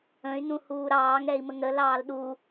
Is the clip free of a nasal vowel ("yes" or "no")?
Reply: no